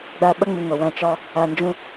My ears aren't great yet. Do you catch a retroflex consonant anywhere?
no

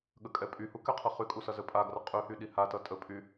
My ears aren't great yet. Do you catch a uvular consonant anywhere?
yes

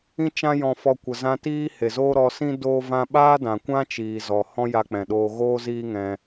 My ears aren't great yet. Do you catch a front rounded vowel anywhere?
no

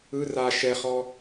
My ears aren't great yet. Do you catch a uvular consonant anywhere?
yes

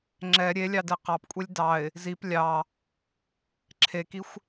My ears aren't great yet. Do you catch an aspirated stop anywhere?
yes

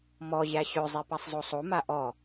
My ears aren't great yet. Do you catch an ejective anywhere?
no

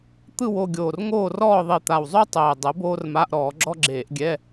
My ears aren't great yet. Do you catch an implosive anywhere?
no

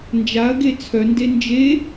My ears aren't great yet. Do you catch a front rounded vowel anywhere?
yes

